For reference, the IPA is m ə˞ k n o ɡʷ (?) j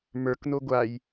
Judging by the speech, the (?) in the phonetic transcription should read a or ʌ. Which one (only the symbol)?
a